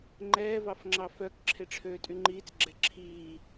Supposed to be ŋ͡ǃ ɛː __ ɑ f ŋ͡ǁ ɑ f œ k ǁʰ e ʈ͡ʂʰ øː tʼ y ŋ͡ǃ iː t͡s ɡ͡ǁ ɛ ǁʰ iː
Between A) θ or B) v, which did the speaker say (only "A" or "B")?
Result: B